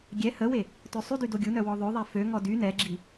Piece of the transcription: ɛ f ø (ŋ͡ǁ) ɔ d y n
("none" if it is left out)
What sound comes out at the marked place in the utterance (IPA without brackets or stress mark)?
ŋ